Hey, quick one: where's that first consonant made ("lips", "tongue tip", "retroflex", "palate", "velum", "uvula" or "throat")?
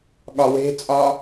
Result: velum